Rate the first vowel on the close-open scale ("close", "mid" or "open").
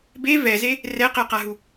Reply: mid